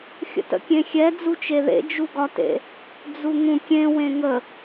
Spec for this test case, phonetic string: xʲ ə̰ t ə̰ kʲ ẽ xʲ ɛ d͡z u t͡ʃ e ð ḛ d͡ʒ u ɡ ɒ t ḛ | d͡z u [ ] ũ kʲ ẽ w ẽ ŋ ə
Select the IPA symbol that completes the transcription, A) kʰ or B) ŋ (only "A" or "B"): B